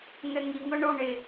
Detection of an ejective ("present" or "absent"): absent